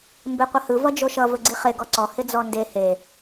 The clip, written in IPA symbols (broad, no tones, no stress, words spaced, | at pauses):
mbeqʷʌhɯ vʌd͡ʒoʃʌ vɵɡ͡ǀiχe ɡɔǀɔ hɪd͡zɔnde he